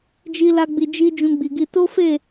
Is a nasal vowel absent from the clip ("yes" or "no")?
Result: no